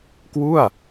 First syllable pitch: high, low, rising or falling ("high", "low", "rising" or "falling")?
falling